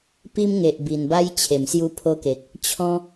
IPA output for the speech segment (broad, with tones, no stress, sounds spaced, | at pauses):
p i˦ m ŋ e˨ ʔ b i˨˩ n b a˦ j t͡ɕʰ e˨˩ m s j u˦ pʰ o˦ k e˨ k̚ | t͡ɕʰ ɔ̃˦